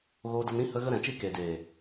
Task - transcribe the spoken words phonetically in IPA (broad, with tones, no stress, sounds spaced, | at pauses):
ɣ oː˧ d ə˧ n ɾ ĩ˦ h ə˦ ɣ ə˦ ɾ ɛ̃˨ t͡ʃ i˦ k eː˨ d eː˨